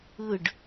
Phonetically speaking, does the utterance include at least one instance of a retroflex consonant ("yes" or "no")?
yes